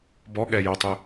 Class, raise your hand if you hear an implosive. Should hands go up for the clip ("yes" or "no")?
yes